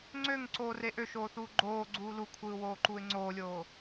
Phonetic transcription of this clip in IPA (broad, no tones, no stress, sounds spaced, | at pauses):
ŋ͡ǀ ø ŋ ǀ oː r e ʔ ø ʃ oː θ uː ɡ͡ǃ oː ɡ͡ǀ uː l u kʷʰ ɯː w oː ǃ uː ɪ̯ ŋ͡ǀ oː lʲ oː